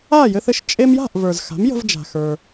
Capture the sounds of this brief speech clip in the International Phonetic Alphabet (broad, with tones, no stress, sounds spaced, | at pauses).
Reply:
a˥˩ j ɘ˧ θ ɘ˧ ʃ t͡ʃʼ e˧ m j a̤˥˩ ʔ v ə˞˩ z x a̤˩˥ m j ə̤˧ v d͡ʒ a̤˩ x ə˞˩